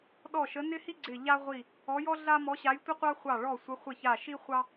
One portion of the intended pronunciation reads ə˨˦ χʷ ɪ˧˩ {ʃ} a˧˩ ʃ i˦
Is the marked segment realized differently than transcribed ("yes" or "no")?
yes